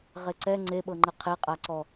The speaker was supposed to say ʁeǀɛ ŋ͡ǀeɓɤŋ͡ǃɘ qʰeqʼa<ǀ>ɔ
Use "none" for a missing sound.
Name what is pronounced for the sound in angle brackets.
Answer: ǀ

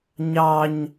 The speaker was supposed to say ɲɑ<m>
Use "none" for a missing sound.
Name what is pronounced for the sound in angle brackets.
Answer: ɲ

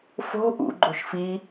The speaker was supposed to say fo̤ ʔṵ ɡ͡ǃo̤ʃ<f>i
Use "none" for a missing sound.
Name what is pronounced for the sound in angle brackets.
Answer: f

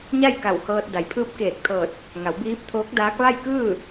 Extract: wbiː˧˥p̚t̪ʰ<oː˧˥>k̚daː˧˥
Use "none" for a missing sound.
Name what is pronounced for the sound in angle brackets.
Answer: oː˧˥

